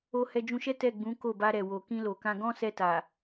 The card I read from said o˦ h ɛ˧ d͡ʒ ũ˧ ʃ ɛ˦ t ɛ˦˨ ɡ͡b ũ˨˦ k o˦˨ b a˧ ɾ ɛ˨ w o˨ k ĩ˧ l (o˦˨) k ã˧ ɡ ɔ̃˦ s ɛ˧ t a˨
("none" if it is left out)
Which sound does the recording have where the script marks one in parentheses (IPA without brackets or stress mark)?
o˨